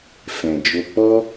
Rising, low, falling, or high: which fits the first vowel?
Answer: low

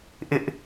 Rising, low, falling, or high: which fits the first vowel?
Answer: high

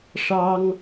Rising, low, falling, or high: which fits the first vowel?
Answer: high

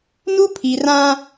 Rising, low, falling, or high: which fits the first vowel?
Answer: high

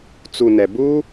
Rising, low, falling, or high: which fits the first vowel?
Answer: low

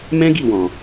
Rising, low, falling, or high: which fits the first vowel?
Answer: high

